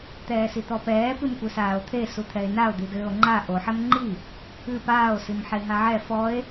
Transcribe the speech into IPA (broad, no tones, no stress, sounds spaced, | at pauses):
t̪ ɛː s i t̪ ɔ p ɛː p ɨ m kʷ ɘ s aː o̯ t̪ʰ e s u t̪ʰ ɛ e̯ n a o̯ d̪ i d ɘː o̯ ŋ͡ǃ a ʔ o ħ ɛ m ŋ͡ǃ i | ɨ p aː o̯ s i m ħ e ɦ a ʕ ɛ f ɔ e̯